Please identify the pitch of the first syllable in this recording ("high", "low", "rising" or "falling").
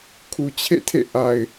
low